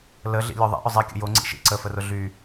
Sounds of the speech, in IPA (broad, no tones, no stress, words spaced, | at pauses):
ləɮḭ lʲoðˤḭʔʊ zˤikʲə̰ jo ŋ͡ǀḭʃḭ ǀəfərʊ ɮy